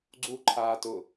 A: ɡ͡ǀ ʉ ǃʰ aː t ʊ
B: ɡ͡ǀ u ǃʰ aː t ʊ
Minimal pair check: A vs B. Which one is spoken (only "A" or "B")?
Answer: B